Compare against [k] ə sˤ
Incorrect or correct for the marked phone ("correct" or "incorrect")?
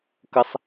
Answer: correct